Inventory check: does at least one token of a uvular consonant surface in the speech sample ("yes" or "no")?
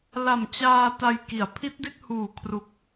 no